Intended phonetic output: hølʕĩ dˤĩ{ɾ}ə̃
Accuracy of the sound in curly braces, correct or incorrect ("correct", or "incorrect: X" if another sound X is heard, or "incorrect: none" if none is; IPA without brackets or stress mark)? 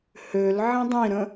correct